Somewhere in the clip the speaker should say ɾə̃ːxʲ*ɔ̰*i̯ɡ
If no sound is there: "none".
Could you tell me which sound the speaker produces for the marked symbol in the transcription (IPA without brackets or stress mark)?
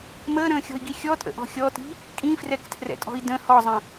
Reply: ɔ̤